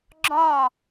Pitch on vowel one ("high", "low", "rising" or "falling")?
falling